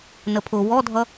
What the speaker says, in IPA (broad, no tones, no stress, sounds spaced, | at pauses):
n ə pʰ ʊ w ɔ dʱ ʌ